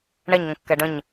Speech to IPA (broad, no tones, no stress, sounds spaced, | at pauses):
ɳ ɛ ɲ ŋ ə̃ kː ɛ ɖ ə̃ ɲ